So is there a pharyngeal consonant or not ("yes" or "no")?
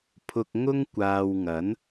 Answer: no